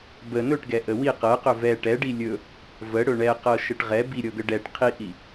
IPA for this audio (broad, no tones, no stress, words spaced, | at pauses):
bə nɵʈɡɛʔə wi qɤqɵ vɛ ʈɛɖi lʲɵ | vəɽɵ ɳɛqɤʃəʈ ʁɛ biɾʲɤɡə ɖɛʈ qʰiʔi